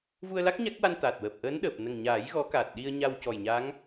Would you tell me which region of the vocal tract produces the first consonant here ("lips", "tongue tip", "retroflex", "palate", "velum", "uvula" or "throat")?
lips